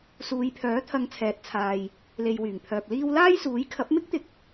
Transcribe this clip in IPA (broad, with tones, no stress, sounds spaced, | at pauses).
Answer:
s uː˨˧ j pʰ œː˨˥ t̪ʰ ɐ˧ ŋ t͡sʰ ɛː˨ t̚ t͡sʰ aː˨ j | l e˨ j w yː˨˩ ŋ pʰ œː˨ p̚ l iː˥ w l aː˥ j s uː˨˥ j kʰ ɐ˨˥ p̚ m ɪ˥ k̚ t̪ ɪ˧ k̚